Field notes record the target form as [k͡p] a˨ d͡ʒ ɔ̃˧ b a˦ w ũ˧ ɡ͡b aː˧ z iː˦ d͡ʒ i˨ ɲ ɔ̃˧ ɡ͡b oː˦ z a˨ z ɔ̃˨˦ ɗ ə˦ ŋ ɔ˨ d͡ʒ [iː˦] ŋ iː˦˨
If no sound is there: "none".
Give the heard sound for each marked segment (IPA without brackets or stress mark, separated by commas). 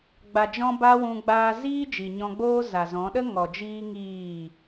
ɡ͡b, iː˦